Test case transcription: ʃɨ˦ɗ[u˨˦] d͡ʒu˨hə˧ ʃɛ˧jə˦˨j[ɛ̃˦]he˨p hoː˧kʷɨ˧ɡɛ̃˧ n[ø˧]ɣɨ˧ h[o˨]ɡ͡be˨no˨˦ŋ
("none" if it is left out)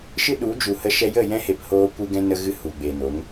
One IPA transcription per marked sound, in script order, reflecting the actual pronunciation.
u˨˦, ɛ̃˦, ə˧, u˨

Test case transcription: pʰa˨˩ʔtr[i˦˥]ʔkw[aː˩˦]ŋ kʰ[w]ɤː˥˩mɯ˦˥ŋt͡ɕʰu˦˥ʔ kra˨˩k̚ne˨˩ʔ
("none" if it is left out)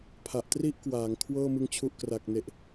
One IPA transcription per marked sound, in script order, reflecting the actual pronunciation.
i˥˩, aː˩˦, w

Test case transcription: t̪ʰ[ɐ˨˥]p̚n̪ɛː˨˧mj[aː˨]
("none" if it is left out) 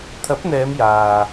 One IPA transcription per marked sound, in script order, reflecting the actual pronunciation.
ɐ˨˥, aː˨

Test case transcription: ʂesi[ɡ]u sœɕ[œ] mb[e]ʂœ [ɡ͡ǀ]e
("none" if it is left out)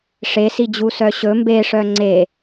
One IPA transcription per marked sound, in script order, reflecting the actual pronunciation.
d͡ʑ, ɵ, e, ŋ͡ǀ

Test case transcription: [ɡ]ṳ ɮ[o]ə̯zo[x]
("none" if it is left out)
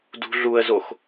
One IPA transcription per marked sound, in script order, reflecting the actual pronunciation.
d, u, x

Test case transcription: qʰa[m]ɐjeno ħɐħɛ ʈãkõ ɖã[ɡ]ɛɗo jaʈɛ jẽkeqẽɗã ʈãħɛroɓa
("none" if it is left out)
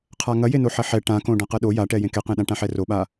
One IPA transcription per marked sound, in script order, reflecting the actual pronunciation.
ŋ, q

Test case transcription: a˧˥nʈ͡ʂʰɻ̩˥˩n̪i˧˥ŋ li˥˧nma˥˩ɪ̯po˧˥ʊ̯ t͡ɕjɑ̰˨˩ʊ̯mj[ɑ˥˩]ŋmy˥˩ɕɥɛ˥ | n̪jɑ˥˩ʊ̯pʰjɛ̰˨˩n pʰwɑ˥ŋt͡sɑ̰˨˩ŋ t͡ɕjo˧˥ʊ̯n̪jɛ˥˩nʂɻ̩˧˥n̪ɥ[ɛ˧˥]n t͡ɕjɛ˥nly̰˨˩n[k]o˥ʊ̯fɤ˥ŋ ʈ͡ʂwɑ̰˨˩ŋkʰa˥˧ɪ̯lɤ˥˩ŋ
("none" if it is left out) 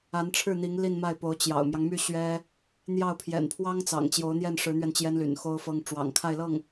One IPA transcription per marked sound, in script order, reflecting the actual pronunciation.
ɑ˦, ɛ˧, x

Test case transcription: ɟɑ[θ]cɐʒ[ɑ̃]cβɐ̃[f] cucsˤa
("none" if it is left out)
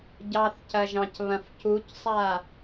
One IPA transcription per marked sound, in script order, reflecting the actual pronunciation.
θ, ɑ̃, f

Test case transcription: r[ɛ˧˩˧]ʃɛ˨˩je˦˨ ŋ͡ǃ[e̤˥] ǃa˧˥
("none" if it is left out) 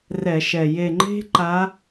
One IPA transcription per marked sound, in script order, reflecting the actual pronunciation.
ɛ˧˩˧, e̤˥

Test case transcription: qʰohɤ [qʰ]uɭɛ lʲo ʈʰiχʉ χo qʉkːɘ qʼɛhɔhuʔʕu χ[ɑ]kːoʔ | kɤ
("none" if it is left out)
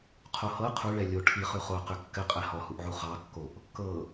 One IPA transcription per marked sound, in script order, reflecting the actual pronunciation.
qʰ, ɑ

